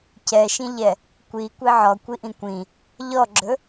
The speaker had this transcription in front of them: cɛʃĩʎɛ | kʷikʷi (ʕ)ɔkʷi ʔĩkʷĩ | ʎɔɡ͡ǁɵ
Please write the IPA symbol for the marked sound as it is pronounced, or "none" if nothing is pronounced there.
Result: ʕ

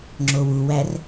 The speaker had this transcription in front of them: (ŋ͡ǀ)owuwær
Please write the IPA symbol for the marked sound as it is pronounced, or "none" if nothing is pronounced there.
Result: ŋ͡ǁ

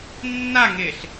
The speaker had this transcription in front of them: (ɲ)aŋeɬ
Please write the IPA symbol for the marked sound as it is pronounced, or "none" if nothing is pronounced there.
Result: nː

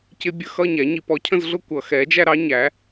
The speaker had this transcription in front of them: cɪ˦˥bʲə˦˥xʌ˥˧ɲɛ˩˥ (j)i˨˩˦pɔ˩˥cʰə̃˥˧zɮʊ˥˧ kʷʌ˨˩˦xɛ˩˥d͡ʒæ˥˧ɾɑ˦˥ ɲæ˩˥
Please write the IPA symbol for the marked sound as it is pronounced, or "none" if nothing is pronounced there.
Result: ɲ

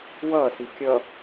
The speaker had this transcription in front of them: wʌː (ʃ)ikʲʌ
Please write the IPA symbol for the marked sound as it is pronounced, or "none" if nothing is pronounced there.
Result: s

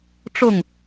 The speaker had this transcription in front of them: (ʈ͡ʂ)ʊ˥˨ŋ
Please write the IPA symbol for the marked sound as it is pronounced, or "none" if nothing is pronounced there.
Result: ʈ͡ʂ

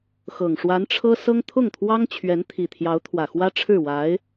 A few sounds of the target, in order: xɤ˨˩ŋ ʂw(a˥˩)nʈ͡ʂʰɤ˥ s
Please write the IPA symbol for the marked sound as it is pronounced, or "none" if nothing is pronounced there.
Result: a˧˥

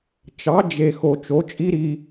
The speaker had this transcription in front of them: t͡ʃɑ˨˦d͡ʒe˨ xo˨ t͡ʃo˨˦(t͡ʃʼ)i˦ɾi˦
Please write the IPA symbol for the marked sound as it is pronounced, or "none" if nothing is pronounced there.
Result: t͡ʃʼ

